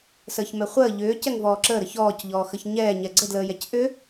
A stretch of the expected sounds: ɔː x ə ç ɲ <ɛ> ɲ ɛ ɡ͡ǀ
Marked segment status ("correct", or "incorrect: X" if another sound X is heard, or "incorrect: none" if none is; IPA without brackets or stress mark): incorrect: ɛː